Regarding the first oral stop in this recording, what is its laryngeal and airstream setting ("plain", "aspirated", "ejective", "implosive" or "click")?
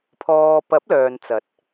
aspirated